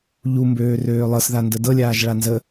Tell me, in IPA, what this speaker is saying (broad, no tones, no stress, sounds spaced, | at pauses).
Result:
ʎ u m b øː r øː lˠ ɤ s ð a n d ə d ɤ lʲ aː ʒ ɭ a n z ə